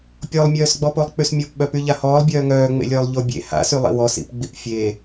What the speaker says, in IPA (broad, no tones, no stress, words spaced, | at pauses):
pʲɔlˠmʲœːsɡ͡bɔpolˠ k͡pysmʲɔpɓœ pyʎahɔːlˠ bʲœːŋœːŋ͡mḛlʲœːlˠ ʎobʲḛ ha̰sylˠḭ wɔsḭpɡ͡bip fʲe